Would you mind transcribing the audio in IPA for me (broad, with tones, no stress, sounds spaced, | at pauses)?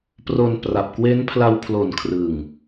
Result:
p r o˧ n p r a˨˩ p̚ k w e˦˥ n pʰ l a˧ w pʰ l o˨˩ n kʰ r ɯ˨˩ ŋ